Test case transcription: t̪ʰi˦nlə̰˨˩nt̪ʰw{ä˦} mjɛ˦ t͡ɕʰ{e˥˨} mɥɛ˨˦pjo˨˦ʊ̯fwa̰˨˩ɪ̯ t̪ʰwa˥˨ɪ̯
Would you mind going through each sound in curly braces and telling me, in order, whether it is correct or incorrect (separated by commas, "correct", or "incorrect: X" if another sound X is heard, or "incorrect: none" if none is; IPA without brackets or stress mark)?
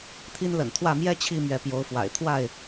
incorrect: ä˥˨, incorrect: i˥˨